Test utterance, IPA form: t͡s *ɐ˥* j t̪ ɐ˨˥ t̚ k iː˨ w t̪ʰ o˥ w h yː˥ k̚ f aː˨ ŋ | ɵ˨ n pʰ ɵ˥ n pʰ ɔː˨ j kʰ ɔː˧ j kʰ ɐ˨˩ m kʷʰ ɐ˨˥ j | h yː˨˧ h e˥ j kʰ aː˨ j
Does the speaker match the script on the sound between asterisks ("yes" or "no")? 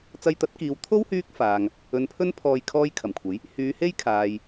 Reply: no